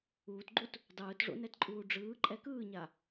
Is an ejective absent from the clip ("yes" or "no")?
no